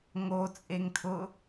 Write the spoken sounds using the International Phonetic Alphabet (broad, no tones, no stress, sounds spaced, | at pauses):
ŋ o t͡sʼ e ŋ tʰ ʊ